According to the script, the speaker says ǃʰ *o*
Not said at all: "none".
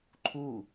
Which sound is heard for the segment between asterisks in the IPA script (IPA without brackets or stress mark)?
u